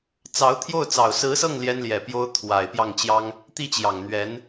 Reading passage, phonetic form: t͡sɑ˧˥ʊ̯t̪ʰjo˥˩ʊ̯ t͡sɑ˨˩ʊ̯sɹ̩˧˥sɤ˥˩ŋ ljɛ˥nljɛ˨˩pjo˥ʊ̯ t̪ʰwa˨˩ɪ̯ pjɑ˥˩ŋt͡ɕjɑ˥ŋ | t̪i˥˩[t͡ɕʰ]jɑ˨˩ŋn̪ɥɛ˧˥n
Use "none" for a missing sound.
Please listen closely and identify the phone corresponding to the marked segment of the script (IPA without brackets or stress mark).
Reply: t͡ɕ